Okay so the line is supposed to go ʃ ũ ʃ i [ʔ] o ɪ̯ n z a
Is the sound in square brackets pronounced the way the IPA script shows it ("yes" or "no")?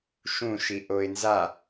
yes